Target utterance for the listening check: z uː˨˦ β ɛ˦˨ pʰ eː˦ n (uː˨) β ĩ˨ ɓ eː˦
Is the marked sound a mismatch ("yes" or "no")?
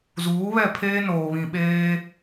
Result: yes